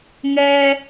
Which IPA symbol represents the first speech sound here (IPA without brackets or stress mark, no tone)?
ŋ